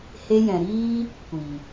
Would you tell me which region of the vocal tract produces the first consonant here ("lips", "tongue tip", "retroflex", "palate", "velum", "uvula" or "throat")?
throat